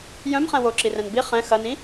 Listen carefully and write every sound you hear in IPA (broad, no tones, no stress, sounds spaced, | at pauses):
j œ̃ m χ ɛ̃ w o ǁ i r ɛ̃ n b i χ ɛ̃ x ɐ n ĩ